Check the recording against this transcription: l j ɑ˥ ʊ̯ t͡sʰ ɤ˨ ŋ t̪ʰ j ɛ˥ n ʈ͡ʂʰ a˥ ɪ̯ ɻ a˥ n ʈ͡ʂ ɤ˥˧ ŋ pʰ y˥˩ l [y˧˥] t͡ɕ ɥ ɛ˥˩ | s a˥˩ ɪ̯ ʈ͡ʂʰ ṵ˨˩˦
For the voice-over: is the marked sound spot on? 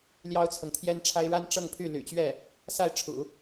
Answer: no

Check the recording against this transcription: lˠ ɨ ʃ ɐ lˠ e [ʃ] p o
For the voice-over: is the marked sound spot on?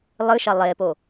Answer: no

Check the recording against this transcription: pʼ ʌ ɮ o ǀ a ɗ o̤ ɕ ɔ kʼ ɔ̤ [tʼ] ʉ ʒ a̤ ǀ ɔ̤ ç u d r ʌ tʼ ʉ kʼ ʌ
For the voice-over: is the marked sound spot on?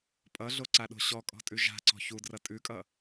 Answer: yes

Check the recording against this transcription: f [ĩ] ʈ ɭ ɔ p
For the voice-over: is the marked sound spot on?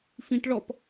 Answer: yes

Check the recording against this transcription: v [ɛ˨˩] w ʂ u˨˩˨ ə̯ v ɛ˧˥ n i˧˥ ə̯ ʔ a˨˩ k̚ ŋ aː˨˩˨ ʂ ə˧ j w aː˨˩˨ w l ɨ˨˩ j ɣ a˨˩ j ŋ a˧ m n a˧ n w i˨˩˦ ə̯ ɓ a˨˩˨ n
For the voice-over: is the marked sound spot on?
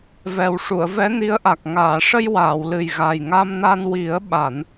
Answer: yes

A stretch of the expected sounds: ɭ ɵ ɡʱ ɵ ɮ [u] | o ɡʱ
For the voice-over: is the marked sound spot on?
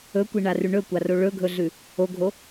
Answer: no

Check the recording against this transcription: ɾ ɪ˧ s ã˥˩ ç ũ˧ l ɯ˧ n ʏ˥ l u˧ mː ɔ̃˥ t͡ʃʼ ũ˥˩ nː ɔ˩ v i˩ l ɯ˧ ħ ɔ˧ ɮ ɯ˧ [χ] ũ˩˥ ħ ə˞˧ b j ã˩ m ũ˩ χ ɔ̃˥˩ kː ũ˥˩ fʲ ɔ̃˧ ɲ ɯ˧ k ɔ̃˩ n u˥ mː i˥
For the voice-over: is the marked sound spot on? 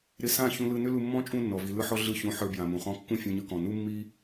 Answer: no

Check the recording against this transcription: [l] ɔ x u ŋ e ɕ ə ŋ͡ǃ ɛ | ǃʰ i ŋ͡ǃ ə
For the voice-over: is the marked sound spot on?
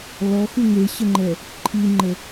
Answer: yes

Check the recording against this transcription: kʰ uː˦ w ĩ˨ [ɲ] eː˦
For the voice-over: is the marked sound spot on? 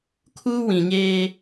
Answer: yes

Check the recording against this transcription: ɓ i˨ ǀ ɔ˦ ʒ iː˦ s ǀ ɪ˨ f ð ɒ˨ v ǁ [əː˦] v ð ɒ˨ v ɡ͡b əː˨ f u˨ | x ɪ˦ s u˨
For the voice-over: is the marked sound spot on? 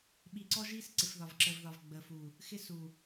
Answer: no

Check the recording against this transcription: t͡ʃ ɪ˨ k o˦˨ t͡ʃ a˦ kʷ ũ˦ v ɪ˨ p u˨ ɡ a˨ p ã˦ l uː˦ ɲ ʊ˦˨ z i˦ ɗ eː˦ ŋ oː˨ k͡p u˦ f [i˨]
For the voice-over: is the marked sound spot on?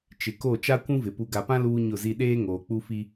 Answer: no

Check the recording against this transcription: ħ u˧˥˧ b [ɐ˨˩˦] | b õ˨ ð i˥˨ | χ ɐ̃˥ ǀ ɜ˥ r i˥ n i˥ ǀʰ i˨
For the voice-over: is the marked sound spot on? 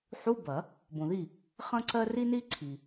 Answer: yes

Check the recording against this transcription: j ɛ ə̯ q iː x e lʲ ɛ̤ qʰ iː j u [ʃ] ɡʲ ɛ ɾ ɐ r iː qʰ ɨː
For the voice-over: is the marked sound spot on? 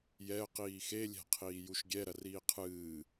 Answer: yes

